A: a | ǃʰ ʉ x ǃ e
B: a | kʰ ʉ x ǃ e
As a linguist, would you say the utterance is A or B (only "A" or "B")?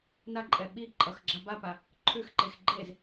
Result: A